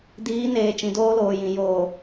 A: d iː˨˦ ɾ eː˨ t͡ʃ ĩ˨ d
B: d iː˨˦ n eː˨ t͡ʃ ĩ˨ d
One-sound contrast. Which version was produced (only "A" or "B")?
B